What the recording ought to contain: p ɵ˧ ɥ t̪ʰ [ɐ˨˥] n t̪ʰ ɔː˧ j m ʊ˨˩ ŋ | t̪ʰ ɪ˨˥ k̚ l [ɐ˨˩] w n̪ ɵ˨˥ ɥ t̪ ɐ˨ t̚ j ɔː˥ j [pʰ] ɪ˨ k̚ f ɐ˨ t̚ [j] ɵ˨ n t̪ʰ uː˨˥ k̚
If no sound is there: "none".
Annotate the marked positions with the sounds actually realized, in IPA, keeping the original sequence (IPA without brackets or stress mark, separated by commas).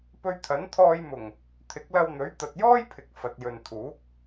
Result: ɐ˨˥, ɐ˧, pʰ, j